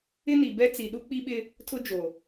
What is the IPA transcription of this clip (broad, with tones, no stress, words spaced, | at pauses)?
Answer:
ɪ˦ni˨bɛ˦t͡si˨ ɗu˦k͡pi˦ɓɪ˦ | tʰʊ˦d͡ʒo˨